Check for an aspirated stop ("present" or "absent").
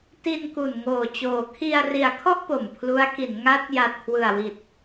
present